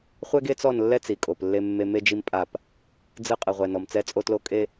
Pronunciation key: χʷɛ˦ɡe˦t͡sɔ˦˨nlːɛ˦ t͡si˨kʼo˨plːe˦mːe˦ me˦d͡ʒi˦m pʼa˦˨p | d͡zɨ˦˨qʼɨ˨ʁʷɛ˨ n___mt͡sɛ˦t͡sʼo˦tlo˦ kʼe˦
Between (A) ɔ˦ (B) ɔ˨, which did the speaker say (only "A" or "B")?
B